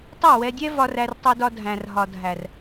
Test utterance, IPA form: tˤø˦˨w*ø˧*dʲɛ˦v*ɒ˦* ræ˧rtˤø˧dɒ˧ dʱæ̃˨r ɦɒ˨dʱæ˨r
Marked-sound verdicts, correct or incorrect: incorrect, incorrect

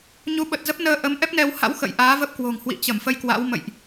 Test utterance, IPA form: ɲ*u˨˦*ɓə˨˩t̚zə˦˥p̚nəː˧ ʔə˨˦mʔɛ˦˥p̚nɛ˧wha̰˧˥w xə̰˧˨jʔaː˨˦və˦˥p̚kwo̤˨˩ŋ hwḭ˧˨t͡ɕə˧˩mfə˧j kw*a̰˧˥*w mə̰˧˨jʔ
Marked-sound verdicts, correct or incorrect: correct, correct

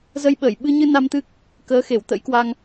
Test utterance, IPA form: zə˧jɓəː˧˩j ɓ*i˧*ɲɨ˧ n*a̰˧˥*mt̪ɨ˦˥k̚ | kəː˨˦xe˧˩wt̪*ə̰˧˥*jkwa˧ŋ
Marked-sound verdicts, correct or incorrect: incorrect, incorrect, correct

